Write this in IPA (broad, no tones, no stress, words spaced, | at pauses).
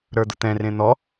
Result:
ɾə˞d̪ʊt̪ɛ̃rẽ n̪ɔ